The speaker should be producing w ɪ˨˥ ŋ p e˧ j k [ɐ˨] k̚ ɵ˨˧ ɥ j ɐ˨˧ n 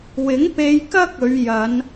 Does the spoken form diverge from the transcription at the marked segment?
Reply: yes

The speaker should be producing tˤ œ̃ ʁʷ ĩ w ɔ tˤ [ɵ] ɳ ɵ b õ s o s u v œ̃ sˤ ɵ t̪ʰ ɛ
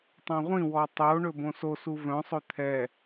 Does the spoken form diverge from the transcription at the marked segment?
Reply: yes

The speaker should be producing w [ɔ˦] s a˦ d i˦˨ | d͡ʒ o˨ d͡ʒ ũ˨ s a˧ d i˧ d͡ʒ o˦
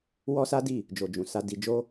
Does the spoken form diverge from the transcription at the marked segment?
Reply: no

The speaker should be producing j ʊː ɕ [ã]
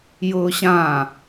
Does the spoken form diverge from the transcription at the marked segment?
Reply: no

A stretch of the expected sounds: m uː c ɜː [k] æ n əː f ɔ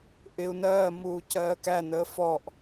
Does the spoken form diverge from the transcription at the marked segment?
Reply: no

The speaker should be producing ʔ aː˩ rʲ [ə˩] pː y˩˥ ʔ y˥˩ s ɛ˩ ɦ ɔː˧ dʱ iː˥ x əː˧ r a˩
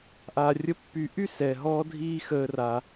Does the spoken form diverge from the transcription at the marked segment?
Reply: yes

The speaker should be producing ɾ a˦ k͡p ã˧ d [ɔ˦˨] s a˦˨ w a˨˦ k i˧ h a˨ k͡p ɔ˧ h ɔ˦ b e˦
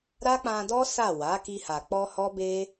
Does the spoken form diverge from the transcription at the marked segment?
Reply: yes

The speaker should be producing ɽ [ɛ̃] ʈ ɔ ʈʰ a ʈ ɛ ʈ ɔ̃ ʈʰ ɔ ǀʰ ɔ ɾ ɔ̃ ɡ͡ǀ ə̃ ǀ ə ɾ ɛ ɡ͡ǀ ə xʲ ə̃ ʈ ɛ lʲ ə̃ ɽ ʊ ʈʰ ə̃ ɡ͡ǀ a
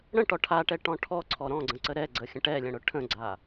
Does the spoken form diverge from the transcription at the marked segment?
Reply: yes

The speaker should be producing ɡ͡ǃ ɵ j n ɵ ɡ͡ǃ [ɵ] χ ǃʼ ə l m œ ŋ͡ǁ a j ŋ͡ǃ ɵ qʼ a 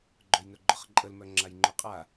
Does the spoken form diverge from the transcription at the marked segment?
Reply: no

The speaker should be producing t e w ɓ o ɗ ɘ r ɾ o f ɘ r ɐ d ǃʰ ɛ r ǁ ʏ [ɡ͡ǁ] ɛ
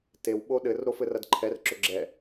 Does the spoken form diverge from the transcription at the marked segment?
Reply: no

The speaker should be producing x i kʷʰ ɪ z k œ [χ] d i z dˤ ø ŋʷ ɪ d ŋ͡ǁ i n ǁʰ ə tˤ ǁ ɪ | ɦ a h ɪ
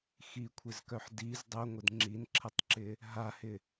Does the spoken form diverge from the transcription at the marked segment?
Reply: yes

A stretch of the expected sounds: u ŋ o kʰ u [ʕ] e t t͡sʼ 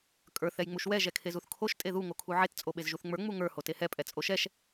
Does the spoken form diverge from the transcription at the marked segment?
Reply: no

